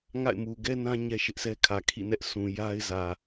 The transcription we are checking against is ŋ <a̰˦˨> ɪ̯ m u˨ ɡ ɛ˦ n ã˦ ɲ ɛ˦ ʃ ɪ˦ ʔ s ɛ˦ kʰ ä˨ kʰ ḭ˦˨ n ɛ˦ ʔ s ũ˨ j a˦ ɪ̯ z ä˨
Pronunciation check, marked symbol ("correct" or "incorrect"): correct